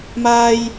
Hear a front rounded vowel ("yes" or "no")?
no